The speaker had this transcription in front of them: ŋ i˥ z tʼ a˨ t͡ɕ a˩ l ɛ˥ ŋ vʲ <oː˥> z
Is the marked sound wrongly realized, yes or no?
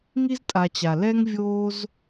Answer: no